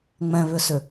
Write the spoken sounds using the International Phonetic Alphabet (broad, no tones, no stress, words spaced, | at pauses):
ŋ͡mɛ̃βʏsʏ